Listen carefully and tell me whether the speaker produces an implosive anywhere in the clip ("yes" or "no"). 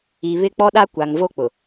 yes